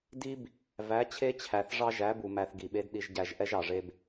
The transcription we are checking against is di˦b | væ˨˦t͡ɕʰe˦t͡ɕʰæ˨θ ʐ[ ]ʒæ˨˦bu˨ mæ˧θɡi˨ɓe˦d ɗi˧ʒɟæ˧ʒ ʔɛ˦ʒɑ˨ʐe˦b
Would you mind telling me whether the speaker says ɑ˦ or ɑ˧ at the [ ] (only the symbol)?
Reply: ɑ˦